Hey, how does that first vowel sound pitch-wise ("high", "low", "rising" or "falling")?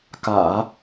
low